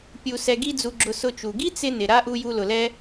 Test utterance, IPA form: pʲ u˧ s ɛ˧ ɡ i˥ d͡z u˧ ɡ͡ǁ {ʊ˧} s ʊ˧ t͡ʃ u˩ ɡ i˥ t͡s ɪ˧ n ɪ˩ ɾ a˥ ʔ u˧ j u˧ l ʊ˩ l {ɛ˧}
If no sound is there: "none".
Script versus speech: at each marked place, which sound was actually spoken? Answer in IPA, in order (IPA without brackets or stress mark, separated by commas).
ʊ˧, ɛ˧